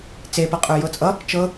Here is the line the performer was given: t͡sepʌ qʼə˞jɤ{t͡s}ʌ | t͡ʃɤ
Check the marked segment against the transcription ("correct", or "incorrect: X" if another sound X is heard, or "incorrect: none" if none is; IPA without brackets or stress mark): incorrect: t͡sʼ